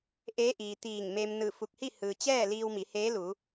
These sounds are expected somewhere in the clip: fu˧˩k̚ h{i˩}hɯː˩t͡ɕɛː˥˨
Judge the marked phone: incorrect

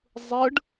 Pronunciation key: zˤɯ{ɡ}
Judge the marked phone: incorrect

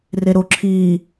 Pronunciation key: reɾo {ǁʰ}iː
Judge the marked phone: correct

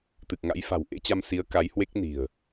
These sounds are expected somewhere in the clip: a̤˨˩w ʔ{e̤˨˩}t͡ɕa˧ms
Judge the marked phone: incorrect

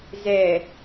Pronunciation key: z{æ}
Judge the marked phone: incorrect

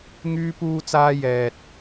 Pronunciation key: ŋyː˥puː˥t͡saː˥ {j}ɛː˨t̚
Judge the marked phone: correct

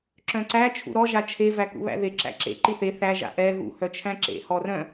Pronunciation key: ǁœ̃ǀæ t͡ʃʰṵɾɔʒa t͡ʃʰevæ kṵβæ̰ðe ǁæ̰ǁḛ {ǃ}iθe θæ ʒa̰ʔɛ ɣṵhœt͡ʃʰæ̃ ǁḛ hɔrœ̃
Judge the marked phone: correct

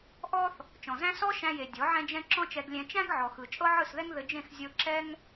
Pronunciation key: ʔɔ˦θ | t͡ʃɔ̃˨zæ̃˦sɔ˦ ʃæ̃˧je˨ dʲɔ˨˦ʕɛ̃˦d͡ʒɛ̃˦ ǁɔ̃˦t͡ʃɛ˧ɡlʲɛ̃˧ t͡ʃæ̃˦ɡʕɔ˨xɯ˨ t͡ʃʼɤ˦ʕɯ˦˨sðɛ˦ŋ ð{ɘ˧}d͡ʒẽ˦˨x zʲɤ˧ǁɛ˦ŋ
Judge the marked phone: correct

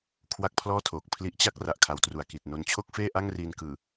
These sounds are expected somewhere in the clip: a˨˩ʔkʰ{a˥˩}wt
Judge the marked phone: incorrect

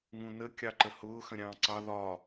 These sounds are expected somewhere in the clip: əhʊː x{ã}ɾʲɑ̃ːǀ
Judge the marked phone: incorrect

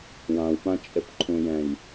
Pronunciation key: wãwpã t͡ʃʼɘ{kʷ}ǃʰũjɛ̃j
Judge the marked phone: incorrect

